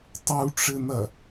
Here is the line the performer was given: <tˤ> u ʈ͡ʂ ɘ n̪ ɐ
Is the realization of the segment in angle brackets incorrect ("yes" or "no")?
no